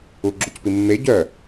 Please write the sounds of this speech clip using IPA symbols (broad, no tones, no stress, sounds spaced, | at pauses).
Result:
u ɡ͡ǁ u c p i mː e ɟ œ